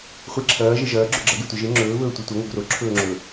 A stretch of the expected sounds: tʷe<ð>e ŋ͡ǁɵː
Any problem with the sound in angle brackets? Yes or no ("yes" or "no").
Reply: yes